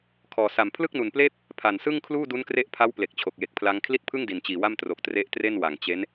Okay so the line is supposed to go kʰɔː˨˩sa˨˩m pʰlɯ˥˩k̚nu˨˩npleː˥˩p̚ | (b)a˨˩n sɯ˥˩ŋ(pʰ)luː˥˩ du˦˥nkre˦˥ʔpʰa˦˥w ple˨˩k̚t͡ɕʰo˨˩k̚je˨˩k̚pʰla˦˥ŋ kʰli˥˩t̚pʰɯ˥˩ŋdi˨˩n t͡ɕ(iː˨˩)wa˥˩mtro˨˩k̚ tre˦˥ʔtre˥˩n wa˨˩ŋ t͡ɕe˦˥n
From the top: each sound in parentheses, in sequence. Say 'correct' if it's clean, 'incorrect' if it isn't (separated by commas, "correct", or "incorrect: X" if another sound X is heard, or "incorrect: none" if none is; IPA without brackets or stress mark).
incorrect: pʰ, incorrect: kʰ, correct